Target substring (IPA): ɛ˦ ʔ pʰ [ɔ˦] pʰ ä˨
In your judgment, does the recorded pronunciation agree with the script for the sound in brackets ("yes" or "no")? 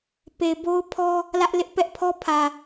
yes